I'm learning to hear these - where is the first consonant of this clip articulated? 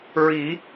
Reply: tongue tip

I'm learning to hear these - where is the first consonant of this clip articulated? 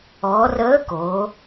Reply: tongue tip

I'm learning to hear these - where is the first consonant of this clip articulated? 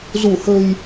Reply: tongue tip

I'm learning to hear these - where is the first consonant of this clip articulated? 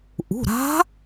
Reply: throat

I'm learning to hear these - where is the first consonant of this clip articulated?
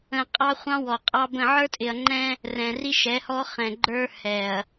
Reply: uvula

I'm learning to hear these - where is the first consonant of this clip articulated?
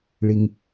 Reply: retroflex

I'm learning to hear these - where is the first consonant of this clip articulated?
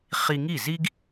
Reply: uvula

